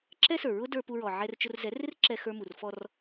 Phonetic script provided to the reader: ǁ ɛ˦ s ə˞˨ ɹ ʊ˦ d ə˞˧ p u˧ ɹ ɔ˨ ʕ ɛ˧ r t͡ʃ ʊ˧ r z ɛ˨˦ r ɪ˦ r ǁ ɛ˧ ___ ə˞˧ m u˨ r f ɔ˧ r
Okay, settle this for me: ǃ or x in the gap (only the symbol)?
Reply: x